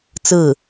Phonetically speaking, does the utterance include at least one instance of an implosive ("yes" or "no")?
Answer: no